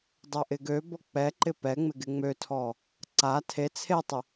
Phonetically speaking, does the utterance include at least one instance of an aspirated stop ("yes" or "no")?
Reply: yes